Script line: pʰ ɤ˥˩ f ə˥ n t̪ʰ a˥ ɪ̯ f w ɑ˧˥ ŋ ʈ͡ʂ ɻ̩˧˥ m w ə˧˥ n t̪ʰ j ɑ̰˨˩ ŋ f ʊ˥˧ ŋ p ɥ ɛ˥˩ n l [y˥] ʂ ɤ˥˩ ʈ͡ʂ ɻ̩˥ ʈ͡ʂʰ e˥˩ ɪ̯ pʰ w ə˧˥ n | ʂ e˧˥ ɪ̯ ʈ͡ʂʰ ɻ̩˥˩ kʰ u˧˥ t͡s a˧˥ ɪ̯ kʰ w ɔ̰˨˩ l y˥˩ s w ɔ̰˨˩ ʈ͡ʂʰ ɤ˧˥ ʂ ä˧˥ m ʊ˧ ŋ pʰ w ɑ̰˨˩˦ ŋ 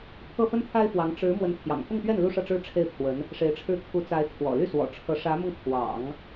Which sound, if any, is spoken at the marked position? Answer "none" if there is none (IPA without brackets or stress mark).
u˥